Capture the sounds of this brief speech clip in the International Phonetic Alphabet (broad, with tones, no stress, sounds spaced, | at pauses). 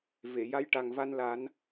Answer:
v e˨˩˨ j a˧˥ j ʈ a˨˩ ŋ v a˧ n l a˨˩˦ n